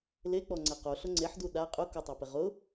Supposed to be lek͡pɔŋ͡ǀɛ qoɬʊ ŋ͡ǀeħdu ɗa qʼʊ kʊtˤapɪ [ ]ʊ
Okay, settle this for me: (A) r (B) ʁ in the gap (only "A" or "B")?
B